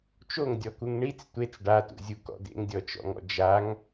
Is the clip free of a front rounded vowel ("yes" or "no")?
yes